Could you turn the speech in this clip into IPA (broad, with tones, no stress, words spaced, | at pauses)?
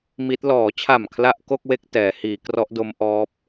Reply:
mi˦˥t̚ lɔː˩˦t͡ɕʰa˨˩m kʰla˥˩ʔ ko˥˩k̚we˥˩k̚ tɛː˩˦hiː˩˦ krɔ˦˥ʔdo˦˥mʔɔː˦˥p̚